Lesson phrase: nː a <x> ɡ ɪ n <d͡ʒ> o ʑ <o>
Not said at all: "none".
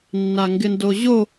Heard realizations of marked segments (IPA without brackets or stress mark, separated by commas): ŋ, d, o